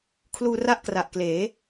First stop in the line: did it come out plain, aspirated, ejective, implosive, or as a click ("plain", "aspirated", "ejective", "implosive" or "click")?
aspirated